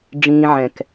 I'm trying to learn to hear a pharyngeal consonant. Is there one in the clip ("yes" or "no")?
yes